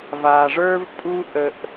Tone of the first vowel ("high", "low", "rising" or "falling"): low